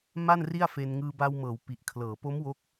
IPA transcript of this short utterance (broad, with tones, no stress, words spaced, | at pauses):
ma˥˩nri˥˩a̯fe˧n ŋɯː˧ba˧wmɤː˩˦w pi˨˩ʔkʰlɤː˩˦ po˦˥m wo˦˥k̚